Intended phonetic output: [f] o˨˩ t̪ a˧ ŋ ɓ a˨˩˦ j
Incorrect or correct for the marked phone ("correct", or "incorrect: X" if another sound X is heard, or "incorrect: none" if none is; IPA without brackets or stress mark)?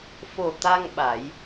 correct